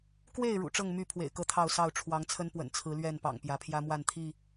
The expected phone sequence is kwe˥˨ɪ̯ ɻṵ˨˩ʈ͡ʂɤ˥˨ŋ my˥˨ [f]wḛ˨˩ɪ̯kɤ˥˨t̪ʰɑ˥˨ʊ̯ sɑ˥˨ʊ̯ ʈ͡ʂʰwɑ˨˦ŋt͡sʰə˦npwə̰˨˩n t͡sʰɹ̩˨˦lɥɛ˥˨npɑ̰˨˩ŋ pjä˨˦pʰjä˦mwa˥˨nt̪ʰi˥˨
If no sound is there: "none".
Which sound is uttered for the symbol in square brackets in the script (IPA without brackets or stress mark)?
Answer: pʰ